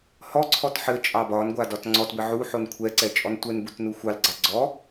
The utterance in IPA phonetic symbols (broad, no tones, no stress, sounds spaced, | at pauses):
h ɔ ǀʰ ɔ t ħ ɘ t͡ʃʼ ɑ b ɒ n ɡʷ a d ɒ t ŋ͡ǀ ɔ t b ɘ ʕ u ħ o n kʷʰ ɛ ǀ ɛ t͡ʃʼ ɔ n tʷ ɛ n b u t n u xʷ ɑ l ɡ͡ǀ ɑ ɡ͡ǀ ɔ